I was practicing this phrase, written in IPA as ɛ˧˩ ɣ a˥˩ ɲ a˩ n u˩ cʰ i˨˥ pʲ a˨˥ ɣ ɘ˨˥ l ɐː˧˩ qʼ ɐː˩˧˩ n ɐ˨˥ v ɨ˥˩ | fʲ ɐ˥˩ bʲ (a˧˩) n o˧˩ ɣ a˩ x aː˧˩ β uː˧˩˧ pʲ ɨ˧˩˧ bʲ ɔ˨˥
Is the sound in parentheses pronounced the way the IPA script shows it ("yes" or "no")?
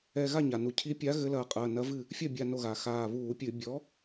yes